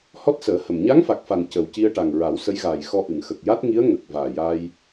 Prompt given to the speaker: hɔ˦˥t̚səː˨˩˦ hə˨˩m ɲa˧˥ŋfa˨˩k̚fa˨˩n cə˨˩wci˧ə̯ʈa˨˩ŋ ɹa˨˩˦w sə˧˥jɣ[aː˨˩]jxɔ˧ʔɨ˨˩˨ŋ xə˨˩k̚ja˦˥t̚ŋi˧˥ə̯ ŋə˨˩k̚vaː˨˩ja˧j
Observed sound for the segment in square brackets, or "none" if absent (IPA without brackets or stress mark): aː˨˩